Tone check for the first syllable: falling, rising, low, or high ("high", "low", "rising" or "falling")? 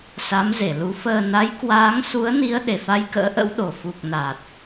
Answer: rising